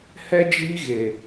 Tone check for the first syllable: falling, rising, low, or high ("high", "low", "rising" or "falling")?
high